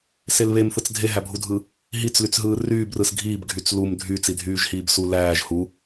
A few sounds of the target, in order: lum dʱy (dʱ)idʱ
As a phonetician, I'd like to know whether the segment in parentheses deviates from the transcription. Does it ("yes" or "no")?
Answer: yes